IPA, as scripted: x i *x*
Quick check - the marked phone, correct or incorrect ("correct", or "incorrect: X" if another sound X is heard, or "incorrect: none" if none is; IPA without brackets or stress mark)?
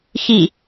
incorrect: none